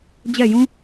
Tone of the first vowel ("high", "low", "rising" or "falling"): falling